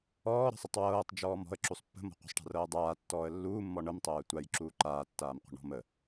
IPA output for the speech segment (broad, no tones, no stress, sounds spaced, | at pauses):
ɔː ɾ ə̤ sˤ ə tˤ w ɤː tˤ d͡ʒ ɔː m ɔ̤ ə̯ ǁ u sˤ pː ə̤ m ɔ̤ qʷ ə̤ sˤ ʈ a̤ r ɤː dˤ aː tː ɔː ə̯ lː uː mː ɔ ɳ ɤ m tˤ ɤː ə̯ tʷ a j ǁ uː ǃ aː tː aː m qʷ ə̤ ɳ ɔ̤ m ə